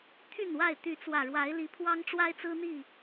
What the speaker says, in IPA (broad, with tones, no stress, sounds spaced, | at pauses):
t̪ʰ y˥˨ n w a˥˨ ɪ̯ t̪ y˨˦ t͡s w ä˨˩ ɻ w a˨˦ ɪ̯ l i˨˦ pʰ w ɑ˦ ŋ ʈ͡ʂ w a˦ ɪ̯ t͡s ɹ̩˦ n̪ i˥˨